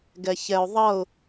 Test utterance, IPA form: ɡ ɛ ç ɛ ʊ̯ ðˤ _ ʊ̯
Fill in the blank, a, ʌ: ʌ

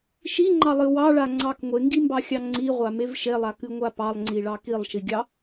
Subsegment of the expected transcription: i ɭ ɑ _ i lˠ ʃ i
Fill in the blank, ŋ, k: k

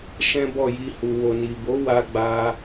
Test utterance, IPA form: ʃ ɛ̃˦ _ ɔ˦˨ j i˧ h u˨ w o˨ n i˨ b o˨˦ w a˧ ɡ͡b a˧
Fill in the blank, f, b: b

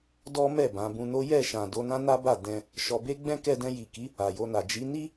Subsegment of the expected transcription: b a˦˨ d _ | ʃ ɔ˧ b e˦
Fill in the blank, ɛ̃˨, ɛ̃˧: ɛ̃˧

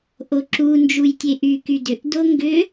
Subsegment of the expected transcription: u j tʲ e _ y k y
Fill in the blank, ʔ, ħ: ʔ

